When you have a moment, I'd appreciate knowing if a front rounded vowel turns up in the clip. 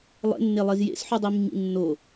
yes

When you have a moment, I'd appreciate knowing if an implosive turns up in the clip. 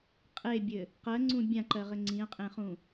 no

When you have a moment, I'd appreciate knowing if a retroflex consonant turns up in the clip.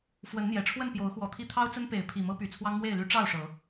yes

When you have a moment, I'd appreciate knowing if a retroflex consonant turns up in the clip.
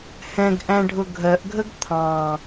yes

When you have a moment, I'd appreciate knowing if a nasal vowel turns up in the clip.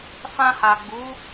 yes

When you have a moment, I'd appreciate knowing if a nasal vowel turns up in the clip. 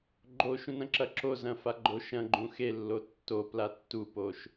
yes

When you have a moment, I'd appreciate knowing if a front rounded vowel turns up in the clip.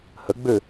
yes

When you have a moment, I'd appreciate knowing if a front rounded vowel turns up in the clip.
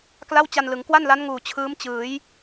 no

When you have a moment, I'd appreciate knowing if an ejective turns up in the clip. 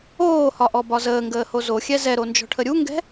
no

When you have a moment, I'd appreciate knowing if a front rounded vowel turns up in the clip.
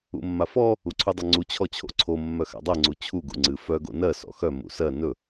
yes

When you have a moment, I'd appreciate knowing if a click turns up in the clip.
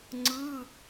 yes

